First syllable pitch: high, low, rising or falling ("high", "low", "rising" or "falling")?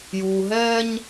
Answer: low